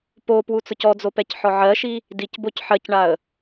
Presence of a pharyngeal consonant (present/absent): present